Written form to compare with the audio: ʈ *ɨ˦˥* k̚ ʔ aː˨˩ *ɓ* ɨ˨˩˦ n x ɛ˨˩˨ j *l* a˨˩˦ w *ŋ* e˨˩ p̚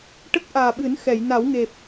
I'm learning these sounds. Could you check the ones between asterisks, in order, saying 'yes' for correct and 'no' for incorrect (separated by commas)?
no, yes, no, yes